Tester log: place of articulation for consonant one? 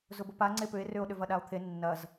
alveolar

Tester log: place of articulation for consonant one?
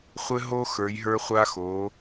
uvular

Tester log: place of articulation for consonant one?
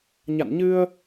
palatal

